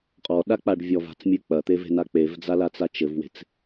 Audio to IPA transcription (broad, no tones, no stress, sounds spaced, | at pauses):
qʼ ɔ ɗ a k͡p a ɖ vʲ ɔ v a̤ t͡s mʲ ɨ k͡p ɐ t̪ e v e̤ n a k͡p e v d͡z a l a t͡s a t͡ʃ ɘ v w e̤ t͡s